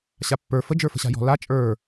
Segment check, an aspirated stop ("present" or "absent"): absent